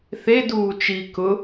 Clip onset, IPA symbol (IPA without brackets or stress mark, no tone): θ